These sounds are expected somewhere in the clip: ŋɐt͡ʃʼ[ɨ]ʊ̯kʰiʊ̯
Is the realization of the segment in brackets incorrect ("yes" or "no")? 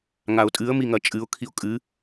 no